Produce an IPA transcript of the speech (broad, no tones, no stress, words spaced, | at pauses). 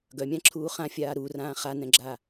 ɡœmʲãǁʰuː χãfʲaː ɾurãː χanɛ̃ɡ͡ǁa